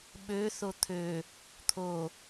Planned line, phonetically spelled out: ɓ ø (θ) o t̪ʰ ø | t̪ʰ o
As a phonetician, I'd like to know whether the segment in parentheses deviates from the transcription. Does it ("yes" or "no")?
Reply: no